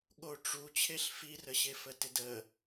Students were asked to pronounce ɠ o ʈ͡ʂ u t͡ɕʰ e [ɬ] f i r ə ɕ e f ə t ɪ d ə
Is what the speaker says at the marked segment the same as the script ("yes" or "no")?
yes